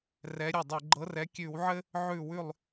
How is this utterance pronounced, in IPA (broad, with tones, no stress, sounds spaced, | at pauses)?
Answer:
r ɛ˨˦ ɾʲ ɘ˧˩ dˤ ɘ˧˩˧ ɡ͡ǃ ɤ˨˦ r ɛ˨˦ kʲ ʉ˧˩˧ w ʕ ɘ˦ | ʕ ʉ˧˩ w ʉ˧˩ lˠ